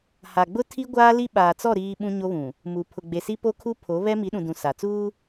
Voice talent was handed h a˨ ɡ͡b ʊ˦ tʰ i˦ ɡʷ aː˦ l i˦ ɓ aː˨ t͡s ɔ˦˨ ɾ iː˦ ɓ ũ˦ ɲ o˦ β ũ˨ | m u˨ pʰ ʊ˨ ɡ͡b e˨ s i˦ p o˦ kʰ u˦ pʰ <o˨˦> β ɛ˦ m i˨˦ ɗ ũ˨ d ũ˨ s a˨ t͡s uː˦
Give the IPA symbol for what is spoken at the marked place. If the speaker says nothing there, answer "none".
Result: o˨˦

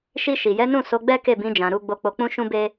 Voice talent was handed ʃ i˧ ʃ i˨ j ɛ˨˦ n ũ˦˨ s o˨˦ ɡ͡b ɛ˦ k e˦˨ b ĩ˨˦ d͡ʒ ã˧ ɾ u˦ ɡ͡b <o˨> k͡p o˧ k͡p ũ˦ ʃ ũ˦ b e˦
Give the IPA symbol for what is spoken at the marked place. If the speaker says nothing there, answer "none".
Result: o˧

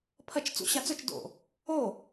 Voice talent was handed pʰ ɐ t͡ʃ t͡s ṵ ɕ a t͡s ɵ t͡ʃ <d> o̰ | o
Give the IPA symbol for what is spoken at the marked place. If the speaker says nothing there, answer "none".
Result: d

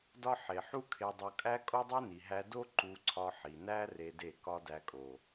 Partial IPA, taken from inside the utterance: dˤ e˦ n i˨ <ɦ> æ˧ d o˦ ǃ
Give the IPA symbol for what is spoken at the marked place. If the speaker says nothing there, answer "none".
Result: ɦ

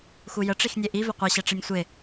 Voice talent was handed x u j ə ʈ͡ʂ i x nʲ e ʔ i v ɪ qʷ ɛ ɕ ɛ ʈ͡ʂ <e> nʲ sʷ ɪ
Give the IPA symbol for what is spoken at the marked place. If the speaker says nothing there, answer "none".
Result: e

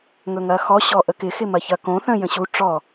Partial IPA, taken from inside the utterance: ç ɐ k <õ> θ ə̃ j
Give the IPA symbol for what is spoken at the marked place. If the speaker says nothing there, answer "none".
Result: õ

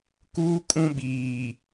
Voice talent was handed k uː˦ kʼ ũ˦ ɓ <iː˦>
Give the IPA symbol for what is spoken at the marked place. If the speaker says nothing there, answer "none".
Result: iː˨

